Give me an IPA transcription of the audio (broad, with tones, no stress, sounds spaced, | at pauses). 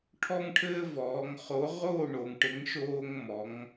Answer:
ʈʰ ɔ˦ ŋ ʈʰ ɘː˦ v ɔː˩˧ ŋ χ o˨˥ ʁ oː˥˨ ɳ o˩˧ ŋ ʈ ɘ˨˥ ŋ ʃ oː˦ ŋ m ɔ˨˥ ŋ